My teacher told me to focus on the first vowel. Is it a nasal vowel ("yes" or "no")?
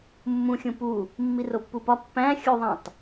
yes